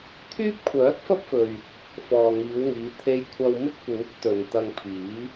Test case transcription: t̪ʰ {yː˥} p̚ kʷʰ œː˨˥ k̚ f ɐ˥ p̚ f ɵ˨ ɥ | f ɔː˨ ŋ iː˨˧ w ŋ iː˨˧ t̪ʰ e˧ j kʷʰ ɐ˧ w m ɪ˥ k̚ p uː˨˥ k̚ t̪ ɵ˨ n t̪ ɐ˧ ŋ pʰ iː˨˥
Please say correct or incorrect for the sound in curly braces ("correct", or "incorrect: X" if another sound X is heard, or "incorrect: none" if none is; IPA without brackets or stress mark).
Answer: correct